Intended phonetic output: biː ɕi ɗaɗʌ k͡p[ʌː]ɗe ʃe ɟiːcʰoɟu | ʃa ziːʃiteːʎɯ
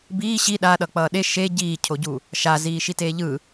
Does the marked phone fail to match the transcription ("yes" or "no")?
no